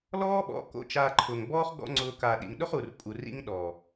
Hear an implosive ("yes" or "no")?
yes